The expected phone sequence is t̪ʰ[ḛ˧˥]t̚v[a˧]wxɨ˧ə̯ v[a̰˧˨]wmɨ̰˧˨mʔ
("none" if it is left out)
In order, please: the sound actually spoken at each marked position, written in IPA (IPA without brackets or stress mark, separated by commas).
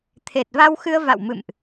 e˨˩, a˧, a̰˧˨